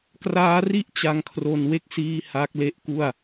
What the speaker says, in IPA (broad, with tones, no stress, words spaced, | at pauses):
kraː˦˥ri˥˩ʔ t͡ɕa˧ŋkʰro˧n we˦˥k̚siː˧ ha˦˥k̚le˦˥ʔku˥˩a̯